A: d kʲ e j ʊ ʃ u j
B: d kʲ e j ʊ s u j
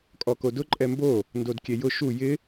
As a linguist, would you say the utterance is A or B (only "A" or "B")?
A